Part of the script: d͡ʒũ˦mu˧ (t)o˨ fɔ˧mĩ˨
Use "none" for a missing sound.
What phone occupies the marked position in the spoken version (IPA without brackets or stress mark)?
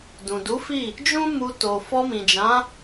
t